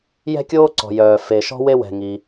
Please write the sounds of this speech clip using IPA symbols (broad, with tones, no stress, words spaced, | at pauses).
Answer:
jɛ̤˥kʲoː˥ǀɔ̤˩jœː˩ fe˩ʃɔ̤˥ we˥wɛ̤˩ŋi˩